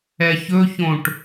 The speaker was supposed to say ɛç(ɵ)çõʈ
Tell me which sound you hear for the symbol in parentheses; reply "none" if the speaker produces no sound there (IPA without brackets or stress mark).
ɵ